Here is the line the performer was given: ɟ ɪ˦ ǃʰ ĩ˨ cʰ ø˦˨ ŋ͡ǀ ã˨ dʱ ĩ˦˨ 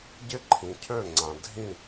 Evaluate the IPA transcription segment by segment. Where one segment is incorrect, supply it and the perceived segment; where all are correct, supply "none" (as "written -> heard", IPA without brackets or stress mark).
none